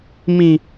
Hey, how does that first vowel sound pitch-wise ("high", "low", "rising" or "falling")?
high